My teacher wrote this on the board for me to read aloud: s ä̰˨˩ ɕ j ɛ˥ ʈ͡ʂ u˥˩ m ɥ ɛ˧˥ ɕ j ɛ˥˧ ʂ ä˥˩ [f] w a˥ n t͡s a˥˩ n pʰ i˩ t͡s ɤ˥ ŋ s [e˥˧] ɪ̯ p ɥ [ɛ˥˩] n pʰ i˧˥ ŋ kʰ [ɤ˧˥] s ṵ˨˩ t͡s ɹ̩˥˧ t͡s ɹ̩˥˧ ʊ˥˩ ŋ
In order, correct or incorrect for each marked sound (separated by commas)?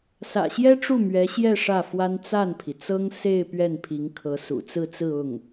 correct, correct, correct, correct